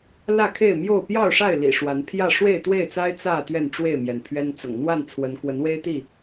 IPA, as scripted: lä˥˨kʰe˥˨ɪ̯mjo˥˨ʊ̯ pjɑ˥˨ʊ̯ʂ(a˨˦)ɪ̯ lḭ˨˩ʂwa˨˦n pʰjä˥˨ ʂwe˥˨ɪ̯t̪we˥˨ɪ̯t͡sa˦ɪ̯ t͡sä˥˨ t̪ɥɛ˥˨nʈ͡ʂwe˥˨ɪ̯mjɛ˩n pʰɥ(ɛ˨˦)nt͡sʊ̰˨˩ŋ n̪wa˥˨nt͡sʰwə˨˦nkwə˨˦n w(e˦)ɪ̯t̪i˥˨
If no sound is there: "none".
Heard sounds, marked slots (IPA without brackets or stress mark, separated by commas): a˥˨, ɛ˦, e˦